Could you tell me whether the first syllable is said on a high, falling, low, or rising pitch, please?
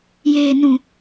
low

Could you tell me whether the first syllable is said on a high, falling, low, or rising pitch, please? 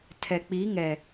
low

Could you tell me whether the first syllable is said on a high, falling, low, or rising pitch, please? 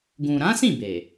low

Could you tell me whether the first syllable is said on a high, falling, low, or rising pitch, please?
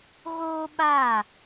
high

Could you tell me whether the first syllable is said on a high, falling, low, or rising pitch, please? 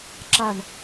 falling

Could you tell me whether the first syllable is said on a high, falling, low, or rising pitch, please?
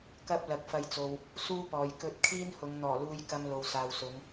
high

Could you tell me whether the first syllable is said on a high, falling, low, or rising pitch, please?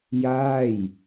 falling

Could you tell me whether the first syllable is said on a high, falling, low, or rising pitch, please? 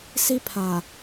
high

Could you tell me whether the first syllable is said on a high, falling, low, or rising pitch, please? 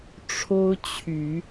high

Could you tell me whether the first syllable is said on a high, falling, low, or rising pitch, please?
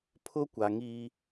high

